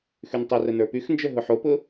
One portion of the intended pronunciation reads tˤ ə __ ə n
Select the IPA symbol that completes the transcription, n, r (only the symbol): r